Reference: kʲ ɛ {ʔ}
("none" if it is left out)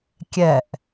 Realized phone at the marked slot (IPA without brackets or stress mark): ʔ